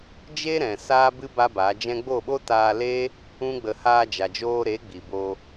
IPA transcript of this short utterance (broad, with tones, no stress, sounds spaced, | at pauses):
d͡ʒ e˦ ɾ ɛ̃˨ s aː˦ b ɨ˦ b a˦ b a˨˦ d͡ʒ ɛ̃˦ ɡ͡b o˦˨ ɓ o˦ t aː˧ l eː˦ | ũ˦ ɡ͡b ə˧ h aː˧ d͡ʒ a˨ d͡ʒ oː˧ ɾ e˨˦ ɡ͡b i˨ b oː˧